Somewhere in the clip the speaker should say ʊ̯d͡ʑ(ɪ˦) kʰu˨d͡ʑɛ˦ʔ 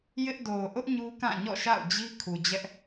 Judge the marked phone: incorrect: i˦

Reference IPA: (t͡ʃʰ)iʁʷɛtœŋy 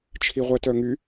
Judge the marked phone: correct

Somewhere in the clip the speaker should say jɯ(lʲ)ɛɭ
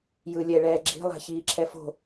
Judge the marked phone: correct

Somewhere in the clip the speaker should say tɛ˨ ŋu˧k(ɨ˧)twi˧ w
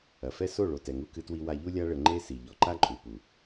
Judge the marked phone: correct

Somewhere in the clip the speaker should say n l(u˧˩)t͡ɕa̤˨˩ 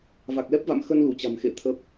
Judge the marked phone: correct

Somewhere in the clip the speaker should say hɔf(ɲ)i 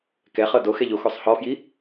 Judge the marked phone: incorrect: j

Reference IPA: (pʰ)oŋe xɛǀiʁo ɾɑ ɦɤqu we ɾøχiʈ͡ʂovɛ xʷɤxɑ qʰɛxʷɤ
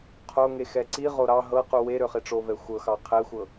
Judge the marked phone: incorrect: qʰ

